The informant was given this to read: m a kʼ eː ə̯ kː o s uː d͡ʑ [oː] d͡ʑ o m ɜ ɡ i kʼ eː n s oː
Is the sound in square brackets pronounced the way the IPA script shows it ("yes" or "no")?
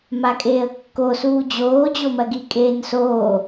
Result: yes